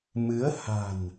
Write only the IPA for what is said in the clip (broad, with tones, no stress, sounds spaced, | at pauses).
m ɨ˨˦ ə̯ h a̤˨˩ n